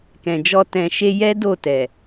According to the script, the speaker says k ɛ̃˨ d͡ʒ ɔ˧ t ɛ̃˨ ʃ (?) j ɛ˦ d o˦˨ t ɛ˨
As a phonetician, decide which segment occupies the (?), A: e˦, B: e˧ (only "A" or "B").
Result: B